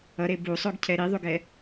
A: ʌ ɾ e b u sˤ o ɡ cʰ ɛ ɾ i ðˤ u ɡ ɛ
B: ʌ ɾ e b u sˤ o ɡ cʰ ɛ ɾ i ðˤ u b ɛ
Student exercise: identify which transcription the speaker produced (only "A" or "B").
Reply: A